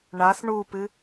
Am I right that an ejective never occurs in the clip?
yes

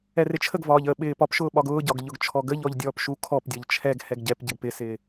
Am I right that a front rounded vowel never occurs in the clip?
yes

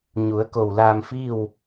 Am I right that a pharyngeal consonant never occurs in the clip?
yes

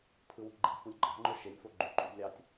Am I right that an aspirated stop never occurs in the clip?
no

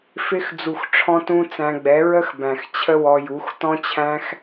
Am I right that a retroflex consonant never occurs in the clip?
no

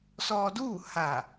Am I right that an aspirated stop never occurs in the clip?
yes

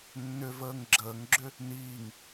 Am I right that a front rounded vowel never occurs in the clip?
no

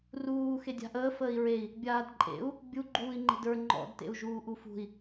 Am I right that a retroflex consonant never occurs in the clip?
yes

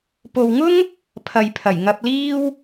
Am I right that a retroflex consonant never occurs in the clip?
yes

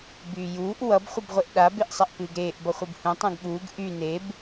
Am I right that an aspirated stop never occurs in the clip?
yes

